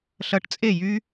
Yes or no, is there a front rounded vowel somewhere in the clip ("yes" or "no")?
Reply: yes